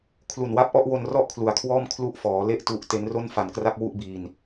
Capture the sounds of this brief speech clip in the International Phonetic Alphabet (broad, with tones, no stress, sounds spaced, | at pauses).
kʰ l u˨˩ n w a˦˥ p̚ ʔ ɔ˥˩ ʔ w o˧ n r ɔ˥˩ ʔ kʰ l u˨˩ a̯ kʰ w ɔː˥˩ m kʰ l u˦˥ ʔ f ɔː˩˦ l e˦˥ ʔ t u˦˥ ʔ t e˦˥ n r o˥˩ n f a˨˩ n k r a˥˩ k̚ w u˥˩ ʔ b iː˧ n